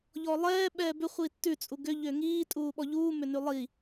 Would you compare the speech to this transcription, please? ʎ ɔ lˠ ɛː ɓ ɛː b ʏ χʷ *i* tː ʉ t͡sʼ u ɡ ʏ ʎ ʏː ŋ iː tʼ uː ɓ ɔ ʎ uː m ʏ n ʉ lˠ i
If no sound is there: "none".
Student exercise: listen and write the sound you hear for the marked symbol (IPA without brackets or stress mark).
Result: i